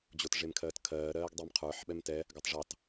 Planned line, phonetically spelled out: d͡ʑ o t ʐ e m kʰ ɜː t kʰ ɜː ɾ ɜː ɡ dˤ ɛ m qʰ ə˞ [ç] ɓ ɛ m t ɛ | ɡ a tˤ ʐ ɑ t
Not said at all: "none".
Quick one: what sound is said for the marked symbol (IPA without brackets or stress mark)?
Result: ħ